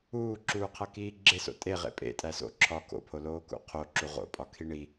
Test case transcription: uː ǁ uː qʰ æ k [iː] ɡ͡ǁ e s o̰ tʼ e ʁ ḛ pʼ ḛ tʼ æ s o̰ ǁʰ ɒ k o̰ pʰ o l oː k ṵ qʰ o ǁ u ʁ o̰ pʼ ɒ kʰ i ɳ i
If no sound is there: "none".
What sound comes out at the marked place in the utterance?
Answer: iː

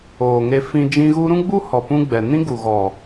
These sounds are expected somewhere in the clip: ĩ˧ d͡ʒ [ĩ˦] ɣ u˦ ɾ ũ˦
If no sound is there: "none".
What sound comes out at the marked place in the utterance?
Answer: ĩ˧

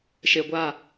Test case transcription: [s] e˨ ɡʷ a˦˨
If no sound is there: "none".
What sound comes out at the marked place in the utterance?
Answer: ʃ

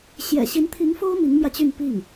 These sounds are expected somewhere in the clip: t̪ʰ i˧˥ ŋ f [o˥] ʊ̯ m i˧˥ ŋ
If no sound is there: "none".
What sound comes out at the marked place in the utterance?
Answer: o˥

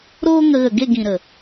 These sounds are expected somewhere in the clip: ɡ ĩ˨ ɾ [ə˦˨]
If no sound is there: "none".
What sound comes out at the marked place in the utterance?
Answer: ə˨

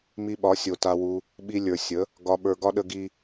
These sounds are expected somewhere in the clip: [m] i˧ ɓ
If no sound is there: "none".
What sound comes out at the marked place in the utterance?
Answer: m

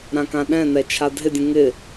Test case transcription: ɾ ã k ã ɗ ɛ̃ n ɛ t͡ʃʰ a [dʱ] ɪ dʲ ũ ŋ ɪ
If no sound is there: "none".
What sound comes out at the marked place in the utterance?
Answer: dʱ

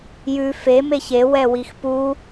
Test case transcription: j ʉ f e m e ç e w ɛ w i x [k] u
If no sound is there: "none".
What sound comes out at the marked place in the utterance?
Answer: p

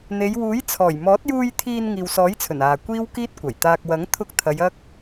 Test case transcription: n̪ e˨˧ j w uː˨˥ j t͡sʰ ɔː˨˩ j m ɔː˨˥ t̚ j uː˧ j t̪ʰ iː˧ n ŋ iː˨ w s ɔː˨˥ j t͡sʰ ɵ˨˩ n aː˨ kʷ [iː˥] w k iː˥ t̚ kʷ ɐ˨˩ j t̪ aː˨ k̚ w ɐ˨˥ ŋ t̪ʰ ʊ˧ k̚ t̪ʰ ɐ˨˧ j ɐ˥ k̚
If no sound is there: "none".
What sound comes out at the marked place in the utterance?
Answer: iː˥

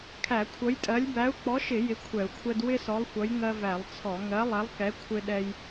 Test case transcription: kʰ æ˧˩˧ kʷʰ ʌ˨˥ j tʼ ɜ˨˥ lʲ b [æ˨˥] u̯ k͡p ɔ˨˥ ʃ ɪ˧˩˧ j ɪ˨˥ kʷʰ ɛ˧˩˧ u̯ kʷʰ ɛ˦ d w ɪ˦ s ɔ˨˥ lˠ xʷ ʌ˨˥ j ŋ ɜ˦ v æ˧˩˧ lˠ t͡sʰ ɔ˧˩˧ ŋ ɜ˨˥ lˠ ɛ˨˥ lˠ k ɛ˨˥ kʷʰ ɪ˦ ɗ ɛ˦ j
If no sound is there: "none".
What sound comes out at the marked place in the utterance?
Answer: æ˨˥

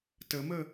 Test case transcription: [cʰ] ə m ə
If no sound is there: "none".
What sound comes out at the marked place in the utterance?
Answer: t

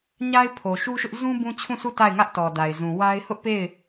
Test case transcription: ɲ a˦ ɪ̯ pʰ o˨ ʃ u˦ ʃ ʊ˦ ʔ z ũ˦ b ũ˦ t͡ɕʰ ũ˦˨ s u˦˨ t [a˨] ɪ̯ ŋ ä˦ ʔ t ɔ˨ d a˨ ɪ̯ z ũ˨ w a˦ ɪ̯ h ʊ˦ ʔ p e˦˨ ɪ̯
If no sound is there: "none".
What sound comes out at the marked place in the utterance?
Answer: a˦˨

